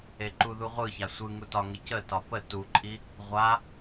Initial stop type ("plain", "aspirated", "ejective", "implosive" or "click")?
click